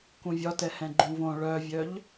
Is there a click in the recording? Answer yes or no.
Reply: yes